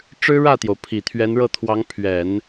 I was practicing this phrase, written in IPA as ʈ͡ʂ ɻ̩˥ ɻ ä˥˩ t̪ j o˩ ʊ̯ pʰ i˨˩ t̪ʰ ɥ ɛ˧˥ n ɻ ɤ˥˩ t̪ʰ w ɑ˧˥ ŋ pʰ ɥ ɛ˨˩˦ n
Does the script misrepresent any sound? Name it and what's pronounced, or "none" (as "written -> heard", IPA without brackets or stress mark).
none